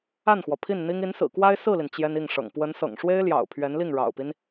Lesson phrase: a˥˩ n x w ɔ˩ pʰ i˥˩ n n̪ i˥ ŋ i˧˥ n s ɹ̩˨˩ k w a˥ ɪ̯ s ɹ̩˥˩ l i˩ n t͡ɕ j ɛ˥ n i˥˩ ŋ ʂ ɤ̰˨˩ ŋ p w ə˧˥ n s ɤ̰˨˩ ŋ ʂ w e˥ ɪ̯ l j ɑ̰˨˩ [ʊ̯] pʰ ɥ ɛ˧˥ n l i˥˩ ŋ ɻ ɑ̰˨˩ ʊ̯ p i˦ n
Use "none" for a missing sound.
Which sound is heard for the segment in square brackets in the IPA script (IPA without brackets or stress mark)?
ʊ̯